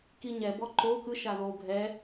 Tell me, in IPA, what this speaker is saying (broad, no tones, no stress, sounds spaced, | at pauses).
k i ɲ ɛ b ɔ ǃ o k ɯ ʃ a ð o ɡʱ ɛ